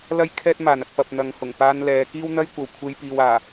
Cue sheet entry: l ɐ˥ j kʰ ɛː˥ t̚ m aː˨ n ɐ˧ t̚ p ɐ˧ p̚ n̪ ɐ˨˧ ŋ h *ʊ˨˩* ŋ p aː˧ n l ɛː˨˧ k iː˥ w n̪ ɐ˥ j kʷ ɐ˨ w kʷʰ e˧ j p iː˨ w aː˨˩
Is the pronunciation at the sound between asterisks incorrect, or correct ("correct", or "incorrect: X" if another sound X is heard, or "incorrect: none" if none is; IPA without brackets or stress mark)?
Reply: correct